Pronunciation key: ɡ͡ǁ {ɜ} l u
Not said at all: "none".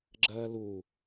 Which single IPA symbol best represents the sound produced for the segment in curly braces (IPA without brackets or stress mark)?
ɜː